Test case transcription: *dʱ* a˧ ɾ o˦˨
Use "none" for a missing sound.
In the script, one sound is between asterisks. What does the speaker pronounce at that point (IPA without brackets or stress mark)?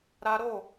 ɾ